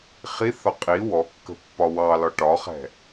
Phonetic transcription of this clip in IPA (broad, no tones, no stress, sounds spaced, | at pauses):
χ i θ ɒ qʼ i w ɔ kː ə̤ pː ɒ w ɑ l ɒ ʈ ɒ χ ɛ̤